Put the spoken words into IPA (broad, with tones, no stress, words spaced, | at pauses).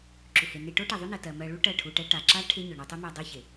ǁʏ˨he˨ne˧ ʈo˦ʈɛ˨ðˤʏ˦nɜ˨ tɜ˨mɜ˧ ɭu˦ ʈɜ˦˨ʈʰu˧ʈɛ˦ ʈa˨ǁa˦ ʈʰe˦ɲʏ˨ ɳo˧tˤu˦mɜ˧ dˤe˦çe˨